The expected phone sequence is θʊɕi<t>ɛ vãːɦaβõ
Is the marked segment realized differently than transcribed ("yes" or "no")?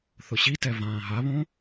no